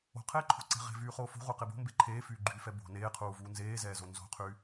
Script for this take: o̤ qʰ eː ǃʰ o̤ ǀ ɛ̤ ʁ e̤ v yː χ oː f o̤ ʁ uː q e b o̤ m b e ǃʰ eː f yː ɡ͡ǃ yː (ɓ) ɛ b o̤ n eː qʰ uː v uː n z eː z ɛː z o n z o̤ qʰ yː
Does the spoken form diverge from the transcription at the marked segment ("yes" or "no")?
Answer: yes